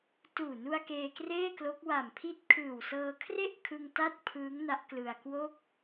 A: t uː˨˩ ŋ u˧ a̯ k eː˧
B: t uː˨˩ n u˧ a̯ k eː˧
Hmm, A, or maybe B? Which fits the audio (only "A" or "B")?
B